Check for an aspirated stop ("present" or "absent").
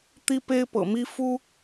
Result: absent